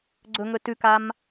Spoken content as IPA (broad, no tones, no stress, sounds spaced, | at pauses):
ɡ͡ǀ ɵ ŋ ɵ t ʉ k a m